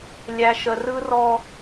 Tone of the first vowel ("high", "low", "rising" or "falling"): low